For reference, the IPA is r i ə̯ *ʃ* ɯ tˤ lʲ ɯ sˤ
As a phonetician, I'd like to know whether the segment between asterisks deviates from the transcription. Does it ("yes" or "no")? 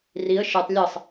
no